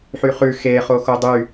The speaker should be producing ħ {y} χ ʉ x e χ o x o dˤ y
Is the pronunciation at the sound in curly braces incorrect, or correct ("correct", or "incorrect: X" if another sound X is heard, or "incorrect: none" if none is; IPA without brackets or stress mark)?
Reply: correct